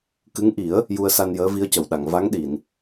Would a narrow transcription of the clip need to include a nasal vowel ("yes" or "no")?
no